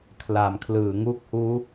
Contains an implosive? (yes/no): no